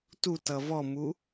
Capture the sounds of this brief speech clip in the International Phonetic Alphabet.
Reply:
t u t ʌ v ɔ m u

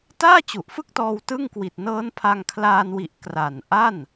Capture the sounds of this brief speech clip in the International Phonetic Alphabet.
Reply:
t aː˥˩ t͡ɕ u˨˩ ʔ f ɯ˥˩ k̚ t ɔː˧ w t ɯ˥˩ ŋ k w i˨˩ t̚ n ɤː˦˥ n pʰ a˧ ŋ kʰ l aː˧ n w i˨˩ ʔ k r a˨˩ n ʔ a˥˩ n

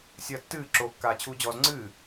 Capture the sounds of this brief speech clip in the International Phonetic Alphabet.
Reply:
sʲ ɐː tː ɨː ǁ o kː aː t͡ɕʰ uː d͡ʑ ɔː z ŋ͡ǀ ɨː

